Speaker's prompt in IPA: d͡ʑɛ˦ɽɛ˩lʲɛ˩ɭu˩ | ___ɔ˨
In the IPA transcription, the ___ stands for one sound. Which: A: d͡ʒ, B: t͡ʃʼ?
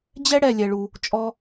B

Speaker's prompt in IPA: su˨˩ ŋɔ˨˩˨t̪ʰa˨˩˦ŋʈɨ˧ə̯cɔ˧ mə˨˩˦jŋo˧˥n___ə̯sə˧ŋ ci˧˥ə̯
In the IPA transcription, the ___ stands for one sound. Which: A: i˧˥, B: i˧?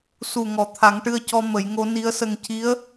A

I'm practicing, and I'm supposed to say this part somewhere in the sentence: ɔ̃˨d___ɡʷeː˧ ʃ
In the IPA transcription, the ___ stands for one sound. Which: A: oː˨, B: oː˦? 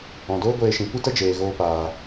B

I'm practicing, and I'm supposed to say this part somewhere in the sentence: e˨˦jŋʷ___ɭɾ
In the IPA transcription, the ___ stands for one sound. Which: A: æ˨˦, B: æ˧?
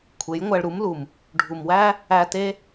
B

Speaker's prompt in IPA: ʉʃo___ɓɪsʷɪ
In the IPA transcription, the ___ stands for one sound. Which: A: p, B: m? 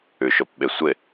A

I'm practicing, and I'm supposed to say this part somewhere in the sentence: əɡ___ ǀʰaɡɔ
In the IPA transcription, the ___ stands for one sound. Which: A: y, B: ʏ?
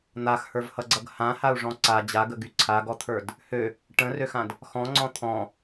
A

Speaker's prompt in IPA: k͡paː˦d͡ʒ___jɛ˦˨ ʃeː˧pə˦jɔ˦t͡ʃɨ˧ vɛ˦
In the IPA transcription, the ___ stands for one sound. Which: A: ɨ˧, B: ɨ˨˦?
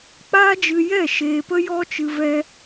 A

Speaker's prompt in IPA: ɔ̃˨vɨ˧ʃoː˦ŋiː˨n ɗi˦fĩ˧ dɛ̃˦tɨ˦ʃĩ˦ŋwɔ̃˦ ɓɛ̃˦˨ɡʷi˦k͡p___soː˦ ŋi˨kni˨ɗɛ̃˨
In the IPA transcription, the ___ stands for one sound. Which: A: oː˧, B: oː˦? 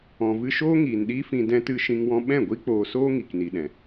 A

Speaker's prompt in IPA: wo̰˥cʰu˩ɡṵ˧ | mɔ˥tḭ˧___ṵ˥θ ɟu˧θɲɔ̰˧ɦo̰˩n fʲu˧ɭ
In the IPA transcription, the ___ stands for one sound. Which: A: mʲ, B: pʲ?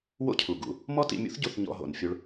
A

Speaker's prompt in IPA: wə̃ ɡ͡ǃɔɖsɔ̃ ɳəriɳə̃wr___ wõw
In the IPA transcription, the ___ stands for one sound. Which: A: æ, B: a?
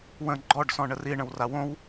B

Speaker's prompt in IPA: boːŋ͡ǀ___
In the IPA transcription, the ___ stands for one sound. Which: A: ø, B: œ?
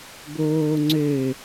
A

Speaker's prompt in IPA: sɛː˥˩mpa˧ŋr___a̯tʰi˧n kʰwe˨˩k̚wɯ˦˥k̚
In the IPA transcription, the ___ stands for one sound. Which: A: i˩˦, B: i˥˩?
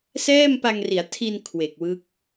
A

